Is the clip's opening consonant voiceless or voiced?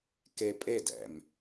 voiceless